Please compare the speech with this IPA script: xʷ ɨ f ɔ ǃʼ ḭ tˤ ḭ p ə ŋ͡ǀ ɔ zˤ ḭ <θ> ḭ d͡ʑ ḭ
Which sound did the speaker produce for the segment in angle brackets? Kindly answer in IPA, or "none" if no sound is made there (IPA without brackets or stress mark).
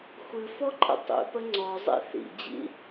θ